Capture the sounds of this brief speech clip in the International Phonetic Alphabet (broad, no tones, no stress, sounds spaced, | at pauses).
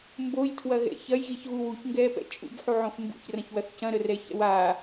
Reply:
m b o j tʰ w ɐ ɣ ɛ̰ ç ɐ j ɣ i ç ɣ u w u ç ŋ ɡ ɛː p ɛ̰ t͡ʃʼ ṵ b ħ u ʕ õ f m b ṵ ç r ɐ̃ ç w ɐ θ c ɐ̃ ɾ ə r ɛ ç ɛ̰ w a